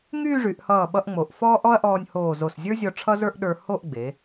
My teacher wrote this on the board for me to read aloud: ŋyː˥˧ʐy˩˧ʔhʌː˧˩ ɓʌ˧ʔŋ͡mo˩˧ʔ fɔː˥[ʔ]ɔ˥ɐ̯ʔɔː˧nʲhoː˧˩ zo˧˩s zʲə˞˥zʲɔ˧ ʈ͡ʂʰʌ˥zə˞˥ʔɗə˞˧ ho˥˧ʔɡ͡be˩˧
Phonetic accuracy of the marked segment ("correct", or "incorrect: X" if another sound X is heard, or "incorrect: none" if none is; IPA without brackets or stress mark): correct